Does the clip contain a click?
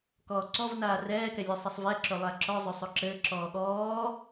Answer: yes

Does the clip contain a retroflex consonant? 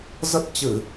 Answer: no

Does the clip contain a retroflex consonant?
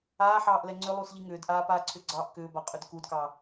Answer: no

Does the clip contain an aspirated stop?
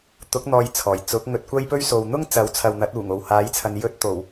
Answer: yes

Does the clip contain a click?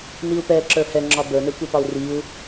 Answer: yes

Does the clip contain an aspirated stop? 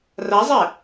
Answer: no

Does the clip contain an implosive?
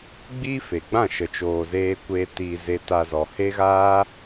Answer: no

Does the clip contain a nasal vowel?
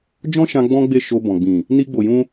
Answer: yes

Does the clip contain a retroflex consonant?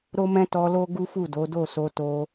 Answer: no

